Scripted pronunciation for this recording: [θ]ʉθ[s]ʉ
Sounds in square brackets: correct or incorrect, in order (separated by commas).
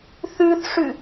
correct, incorrect